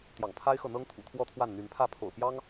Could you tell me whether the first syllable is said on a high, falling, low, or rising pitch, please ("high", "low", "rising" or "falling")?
low